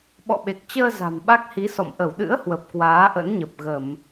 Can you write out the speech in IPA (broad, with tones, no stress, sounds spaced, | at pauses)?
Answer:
ɓ ɔ̰˧˨ ɓ e˨˩ k̚ t͡ɕ əː˧ z a̤˨˩ m ɓ a˦˥ k̚ h i˨˦ s ɔ̰˧˨ m ʔ ə˧˩ w ɗ ɨ̰˧˥ ə̯ h w ə˨˩ p̚ k w aː˨˦ ʔ ə̰˧˥ n ɲ ə˨˩ p̚ ɣ ə˧˩˨ m